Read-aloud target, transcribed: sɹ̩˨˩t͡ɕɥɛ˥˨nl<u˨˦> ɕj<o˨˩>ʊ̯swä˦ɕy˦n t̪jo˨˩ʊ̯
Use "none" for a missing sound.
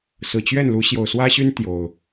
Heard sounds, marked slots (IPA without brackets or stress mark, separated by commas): u˨˦, o˨˩